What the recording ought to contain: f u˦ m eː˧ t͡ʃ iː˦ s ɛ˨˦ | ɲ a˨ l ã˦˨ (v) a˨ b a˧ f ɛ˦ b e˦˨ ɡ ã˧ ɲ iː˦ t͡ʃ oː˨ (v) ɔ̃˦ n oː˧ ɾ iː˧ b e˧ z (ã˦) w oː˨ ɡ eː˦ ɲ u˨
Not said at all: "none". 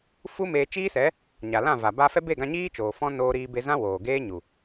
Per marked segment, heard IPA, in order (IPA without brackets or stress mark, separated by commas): v, f, ã˦